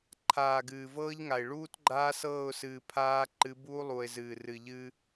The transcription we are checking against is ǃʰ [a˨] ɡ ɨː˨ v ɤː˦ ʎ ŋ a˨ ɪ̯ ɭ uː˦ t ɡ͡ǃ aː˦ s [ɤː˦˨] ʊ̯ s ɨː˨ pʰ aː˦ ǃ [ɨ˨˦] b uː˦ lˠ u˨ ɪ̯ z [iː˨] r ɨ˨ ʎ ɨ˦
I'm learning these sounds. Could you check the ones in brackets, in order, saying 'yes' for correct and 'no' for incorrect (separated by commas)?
no, yes, yes, no